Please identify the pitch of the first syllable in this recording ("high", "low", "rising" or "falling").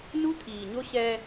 high